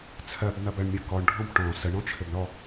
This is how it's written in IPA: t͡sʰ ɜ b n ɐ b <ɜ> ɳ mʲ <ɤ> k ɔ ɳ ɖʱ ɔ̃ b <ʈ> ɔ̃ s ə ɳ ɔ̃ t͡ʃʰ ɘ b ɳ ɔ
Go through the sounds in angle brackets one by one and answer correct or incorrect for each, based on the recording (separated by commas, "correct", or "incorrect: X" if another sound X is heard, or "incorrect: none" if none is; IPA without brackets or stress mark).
correct, correct, correct